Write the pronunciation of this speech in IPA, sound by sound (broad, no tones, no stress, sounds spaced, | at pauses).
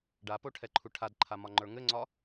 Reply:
ɖ a p o ʈʰ ɛ ǃʰ u ʈʰ a d ǃʰ a m ɒ ŋ͡ǃ ə˞ ŋ ɘ ŋ͡ǀ ɒ